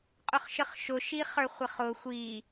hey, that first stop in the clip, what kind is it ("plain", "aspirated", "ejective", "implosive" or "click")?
ejective